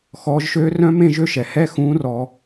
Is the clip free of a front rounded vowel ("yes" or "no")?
no